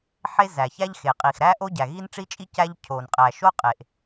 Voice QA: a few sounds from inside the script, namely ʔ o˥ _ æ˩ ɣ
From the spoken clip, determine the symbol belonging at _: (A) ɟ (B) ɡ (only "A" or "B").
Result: A